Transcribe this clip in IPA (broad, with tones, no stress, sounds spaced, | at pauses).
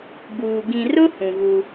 b uː˨ ɡ ĩ˨ r ʊ˦ h ũ˨ ɣ u˦